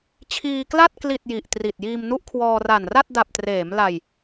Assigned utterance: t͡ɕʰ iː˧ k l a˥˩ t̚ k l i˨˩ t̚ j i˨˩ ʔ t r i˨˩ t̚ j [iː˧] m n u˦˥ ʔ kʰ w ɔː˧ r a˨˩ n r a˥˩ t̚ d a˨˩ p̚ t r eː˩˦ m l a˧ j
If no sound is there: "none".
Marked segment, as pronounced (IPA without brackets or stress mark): iː˧